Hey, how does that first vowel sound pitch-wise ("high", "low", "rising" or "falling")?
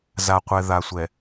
low